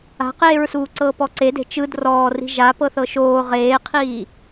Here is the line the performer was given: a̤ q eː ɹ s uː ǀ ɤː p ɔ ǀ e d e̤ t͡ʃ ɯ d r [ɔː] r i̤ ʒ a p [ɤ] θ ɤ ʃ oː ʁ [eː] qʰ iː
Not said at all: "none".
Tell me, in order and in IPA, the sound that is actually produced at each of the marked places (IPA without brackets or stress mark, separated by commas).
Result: ɔː, ɤ, eː